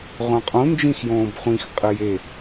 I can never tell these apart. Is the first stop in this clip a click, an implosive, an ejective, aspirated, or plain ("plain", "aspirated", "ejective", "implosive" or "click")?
ejective